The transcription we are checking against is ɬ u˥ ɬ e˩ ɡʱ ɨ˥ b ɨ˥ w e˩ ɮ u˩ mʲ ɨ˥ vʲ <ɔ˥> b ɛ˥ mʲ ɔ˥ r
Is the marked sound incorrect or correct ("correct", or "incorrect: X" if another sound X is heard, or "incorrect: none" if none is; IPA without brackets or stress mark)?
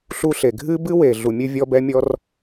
correct